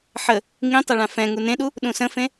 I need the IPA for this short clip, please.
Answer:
ħə | ŋĩtˤɐ ɭãfɛ̃ŋu nẽɗu | ɗũsə̃fẽ

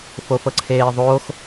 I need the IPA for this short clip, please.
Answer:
fofɤǀʰeːðˤoːx

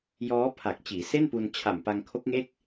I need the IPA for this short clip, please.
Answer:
jɔː˦˥pʰa˨˩k̚ t͡ɕiː˩˦se˥˩npu˧n t͡ɕʰa˨˩mpa˧ŋkʰo˦˥k̚ŋe˥˩k̚

